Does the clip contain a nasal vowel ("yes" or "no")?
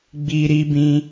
yes